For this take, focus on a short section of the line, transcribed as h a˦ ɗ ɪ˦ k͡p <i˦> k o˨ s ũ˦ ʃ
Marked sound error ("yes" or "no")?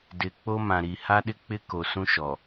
yes